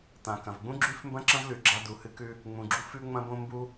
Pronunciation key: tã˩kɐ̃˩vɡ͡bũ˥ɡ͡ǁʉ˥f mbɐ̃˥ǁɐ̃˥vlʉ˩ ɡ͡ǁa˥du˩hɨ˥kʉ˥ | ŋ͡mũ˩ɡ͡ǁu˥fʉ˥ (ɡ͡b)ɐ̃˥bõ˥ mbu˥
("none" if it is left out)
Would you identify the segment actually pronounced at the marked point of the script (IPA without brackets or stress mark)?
ŋ͡m